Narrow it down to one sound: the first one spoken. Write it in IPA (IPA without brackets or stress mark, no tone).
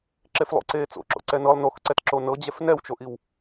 ǁ